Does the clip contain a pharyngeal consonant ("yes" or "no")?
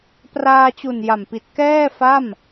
no